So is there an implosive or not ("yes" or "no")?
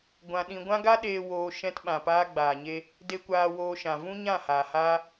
yes